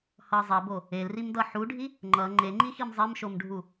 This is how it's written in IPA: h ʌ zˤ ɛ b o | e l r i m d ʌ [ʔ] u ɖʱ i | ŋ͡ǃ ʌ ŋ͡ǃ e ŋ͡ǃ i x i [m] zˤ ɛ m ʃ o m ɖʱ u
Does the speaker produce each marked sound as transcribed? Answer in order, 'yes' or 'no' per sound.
no, yes

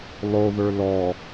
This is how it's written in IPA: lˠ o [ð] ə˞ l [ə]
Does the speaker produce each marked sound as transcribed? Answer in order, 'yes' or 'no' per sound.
yes, no

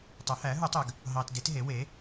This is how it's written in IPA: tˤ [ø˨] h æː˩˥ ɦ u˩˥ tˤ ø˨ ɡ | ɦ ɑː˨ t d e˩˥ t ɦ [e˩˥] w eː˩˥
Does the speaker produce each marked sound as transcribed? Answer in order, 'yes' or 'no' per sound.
no, yes

